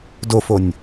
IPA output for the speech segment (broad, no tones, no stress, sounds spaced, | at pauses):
d o f o nʲ